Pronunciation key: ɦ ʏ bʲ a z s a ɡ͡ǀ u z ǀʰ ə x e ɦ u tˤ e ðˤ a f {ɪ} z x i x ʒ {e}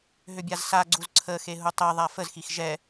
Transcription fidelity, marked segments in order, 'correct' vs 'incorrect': incorrect, incorrect

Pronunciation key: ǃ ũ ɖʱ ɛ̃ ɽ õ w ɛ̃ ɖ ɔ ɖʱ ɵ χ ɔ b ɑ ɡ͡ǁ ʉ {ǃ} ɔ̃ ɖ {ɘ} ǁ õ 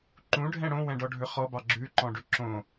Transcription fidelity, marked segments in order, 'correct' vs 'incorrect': correct, incorrect

